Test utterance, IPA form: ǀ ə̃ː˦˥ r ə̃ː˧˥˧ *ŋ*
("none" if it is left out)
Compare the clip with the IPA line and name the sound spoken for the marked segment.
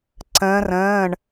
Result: ɳ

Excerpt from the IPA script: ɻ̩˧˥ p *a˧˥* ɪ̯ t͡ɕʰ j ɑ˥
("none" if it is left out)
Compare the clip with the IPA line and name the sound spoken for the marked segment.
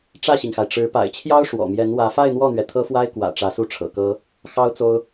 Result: a̰˨˩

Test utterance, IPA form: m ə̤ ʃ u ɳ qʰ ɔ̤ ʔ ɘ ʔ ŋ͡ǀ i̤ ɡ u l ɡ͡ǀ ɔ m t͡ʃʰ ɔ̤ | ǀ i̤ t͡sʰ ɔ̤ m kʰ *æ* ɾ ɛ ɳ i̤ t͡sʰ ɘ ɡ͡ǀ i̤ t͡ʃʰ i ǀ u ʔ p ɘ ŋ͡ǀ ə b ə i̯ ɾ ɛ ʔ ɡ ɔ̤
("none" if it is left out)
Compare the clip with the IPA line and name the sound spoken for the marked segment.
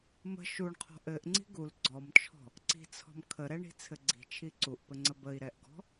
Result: ə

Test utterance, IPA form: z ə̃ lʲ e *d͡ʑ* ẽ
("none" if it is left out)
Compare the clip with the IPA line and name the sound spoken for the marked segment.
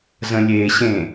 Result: ɕ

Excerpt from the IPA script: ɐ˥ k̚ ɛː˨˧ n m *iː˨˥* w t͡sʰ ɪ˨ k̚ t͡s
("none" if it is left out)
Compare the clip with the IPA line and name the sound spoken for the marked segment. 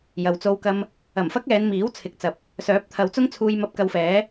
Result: iː˨˥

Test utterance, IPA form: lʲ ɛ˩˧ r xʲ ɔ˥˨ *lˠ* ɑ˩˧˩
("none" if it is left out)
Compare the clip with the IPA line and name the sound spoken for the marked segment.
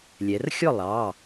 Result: lˠ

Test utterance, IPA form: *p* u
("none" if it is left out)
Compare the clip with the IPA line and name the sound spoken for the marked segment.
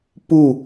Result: p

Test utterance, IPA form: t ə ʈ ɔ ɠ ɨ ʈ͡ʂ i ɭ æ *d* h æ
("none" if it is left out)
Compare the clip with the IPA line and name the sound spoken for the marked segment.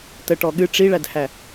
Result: d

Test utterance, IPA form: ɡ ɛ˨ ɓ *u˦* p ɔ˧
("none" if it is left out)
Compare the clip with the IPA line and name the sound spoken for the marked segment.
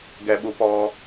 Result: u˨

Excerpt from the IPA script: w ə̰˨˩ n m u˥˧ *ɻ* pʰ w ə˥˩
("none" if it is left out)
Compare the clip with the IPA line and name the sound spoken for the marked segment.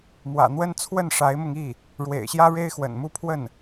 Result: none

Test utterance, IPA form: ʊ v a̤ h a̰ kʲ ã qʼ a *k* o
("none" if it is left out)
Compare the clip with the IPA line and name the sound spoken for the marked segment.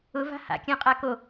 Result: k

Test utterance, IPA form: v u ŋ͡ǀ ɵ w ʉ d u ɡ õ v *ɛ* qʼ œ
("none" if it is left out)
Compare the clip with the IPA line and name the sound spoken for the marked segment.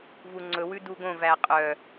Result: æ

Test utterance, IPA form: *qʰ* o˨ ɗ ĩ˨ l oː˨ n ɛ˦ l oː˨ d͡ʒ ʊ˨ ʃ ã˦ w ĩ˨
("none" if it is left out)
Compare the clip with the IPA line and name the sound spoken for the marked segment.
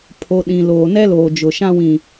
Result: pʰ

